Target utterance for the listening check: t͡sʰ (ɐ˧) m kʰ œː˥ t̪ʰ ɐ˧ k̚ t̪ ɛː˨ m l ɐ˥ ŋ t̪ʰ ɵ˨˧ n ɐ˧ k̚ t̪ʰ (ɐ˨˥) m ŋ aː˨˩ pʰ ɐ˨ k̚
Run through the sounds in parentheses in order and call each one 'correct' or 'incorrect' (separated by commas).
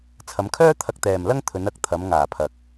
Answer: incorrect, incorrect